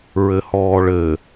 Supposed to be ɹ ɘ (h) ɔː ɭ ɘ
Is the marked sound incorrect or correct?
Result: correct